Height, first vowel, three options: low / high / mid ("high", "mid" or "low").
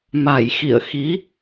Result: low